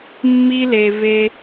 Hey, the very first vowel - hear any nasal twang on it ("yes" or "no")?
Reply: no